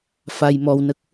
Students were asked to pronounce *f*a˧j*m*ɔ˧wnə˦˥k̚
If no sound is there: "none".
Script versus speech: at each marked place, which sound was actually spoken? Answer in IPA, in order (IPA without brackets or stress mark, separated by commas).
f, m